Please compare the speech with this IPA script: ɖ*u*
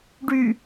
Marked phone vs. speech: incorrect: y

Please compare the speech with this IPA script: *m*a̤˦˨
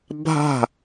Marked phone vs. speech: incorrect: bʱ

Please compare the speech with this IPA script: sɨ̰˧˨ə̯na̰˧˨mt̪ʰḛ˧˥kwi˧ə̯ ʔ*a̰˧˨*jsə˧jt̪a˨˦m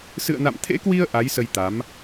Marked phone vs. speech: incorrect: a˨˦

